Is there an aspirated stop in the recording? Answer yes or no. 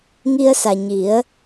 no